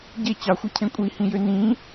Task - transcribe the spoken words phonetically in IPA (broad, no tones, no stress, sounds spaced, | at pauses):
ɟ e t͡ɕ ɑ xʷ ɯ cʰ ẽ kʷʼ i h ĩ j ø n ĩ